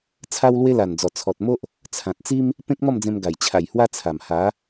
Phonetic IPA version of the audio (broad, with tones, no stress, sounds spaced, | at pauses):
t͡sʰ a˦ w l w e˦ l a˨˩ n d͡z ɔ˨˩ t͡sʰ ɔ˨ t̚ m o˦ ʔ | t͡sʰ ã˨ t̚ t͡s i˦ m | p ẽ˦ k̚ m ɔ˥˧ m d͡z ẽ˧ m ɡ a˨˩ j t͡ɕʰ a˨˩ j h w a˦ t͡sʰ a˨˩ m h a˨˦